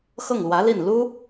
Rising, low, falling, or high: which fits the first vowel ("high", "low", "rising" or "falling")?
falling